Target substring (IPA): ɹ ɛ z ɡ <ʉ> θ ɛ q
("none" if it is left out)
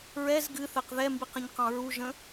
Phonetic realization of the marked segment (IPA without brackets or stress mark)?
ɨ